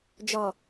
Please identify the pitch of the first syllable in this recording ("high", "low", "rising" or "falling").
low